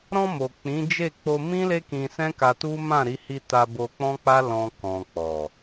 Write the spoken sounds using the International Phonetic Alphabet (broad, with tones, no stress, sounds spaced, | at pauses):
ɾ ɔ̃˧ m o˨ k͡p ĩ˨˦ d͡ʒ e˦˨ k͡p o˧ m ĩ˦ l e˦ k ĩ˧ s ɛ̃˦ k a˧ t u˦ m ã˦˨ ɾ i˨˦ h i˧ t a˧ b o˧ k͡p ɔ̃˦ k͡p a˦ l ɔ̃˧ k ɔ̃˨ k͡p ɔ˨